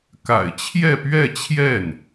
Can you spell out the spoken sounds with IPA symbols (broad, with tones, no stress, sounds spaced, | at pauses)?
k a̰˨˩ ɪ̯ t͡ɕʰ j ɛ˥˧ p ɥ ɛ˥˧ t͡ɕʰ j ɛ˥˩ n